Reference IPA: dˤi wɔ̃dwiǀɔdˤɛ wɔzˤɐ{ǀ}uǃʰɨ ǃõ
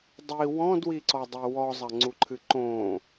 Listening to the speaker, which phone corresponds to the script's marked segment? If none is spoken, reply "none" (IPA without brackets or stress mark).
ŋ͡ǀ